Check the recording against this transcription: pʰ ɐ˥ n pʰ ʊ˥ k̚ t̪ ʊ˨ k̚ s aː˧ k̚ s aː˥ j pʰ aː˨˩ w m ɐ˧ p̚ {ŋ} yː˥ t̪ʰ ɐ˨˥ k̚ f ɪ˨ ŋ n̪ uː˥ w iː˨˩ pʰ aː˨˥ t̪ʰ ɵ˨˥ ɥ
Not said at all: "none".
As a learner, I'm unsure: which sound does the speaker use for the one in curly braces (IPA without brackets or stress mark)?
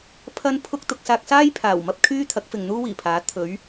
kʰ